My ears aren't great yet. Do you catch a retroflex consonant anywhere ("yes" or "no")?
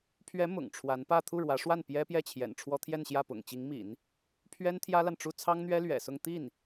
yes